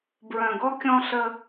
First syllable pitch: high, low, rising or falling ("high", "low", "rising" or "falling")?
low